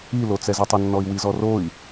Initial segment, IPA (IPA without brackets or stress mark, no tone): i